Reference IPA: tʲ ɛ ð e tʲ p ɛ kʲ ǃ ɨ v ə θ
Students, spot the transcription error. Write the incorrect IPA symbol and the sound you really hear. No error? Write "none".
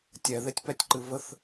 kʲ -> tʲ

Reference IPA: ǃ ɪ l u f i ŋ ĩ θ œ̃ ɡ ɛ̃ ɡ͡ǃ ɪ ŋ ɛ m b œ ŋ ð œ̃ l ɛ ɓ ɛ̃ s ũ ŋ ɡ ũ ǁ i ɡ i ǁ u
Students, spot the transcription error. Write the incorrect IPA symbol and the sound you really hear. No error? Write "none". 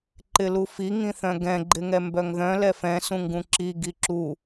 ɓ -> f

